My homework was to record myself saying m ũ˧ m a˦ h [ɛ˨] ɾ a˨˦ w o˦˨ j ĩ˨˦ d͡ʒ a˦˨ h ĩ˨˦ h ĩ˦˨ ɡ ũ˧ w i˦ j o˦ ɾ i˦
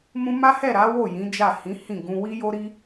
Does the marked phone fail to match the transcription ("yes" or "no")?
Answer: yes